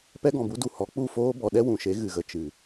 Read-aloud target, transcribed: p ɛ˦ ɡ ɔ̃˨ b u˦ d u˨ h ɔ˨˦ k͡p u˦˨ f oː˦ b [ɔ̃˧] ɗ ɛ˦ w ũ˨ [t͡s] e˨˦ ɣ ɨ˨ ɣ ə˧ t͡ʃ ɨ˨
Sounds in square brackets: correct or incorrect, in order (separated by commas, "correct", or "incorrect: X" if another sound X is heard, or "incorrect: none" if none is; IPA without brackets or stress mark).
incorrect: ɔ˧, incorrect: ʃ